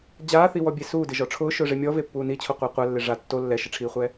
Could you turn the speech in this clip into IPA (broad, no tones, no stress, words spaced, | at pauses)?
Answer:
d͡ʑaːθiwɔbʲe suːdɪʒɔ ʈ͡ʂʰʊːʃʊːʐe mʲɔvepːuː nit͡ɕʰoqʷa qʷalːɪ ʐa tːo lːɛʃɪʈ͡ʂʰiːχʷɛ